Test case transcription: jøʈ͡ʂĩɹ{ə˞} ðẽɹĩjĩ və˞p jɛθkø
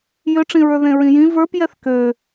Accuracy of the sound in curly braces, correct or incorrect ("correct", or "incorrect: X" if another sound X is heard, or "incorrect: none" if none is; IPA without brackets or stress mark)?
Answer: correct